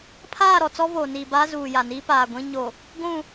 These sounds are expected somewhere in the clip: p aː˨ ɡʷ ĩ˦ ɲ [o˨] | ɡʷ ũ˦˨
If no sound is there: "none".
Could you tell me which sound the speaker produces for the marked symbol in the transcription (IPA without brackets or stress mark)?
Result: o˨